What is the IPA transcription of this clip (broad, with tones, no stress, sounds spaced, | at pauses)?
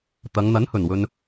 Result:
t̪ ɐ˨˧ ŋ n̪ ɐ˨˥ n h ɵ˨˩ n w ɵ˨ n